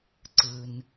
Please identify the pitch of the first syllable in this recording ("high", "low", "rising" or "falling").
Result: low